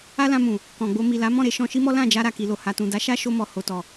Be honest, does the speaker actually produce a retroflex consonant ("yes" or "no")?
no